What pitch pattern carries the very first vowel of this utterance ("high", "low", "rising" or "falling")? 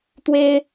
high